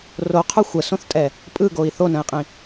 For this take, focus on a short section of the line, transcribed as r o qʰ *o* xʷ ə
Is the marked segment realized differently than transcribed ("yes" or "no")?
yes